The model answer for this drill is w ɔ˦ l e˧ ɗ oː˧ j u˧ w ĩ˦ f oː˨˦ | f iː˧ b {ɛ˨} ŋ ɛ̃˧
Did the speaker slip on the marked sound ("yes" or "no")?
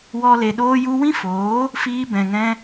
yes